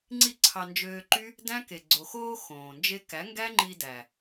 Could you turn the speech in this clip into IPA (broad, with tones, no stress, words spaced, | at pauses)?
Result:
ŋ͡ǀi˦˨ǀʰɑ˧nd͡ʒøː˧ǃy˦ | dæ̃˦ke˨ ɡ͡ǀo˨xoː˧ xõː˨nd͡ʒe˦ kæ˨˦ŋɡæ˦ŋ͡ǃi˧ dæ˨